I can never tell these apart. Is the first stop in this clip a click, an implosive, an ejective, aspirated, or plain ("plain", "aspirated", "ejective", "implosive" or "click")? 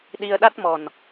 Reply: implosive